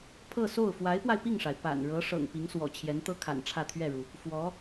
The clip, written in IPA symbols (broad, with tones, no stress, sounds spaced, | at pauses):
pʰ ɤ˥˧ s o˥˩ ʊ̯ f w a˧˥ ɪ̯ p w a˧ ɪ̯ p i˥˩ ŋ ʂ a˩ ɪ̯ p a̰˨˩ n ɻ ɤ˧˥ ʂ ɤ̰˨˩ ŋ p i˧˥ ŋ s w ɔ̰˨˩ t͡ɕʰ j ɛ˧˥ n t̪ ɤ˥ kʰ a̰˨˩ n ʈ͡ʂʰ ä˥˧ t̪ʰ ɥ ɛ˥˩ ɻ u˩ | f w ɔ˧˥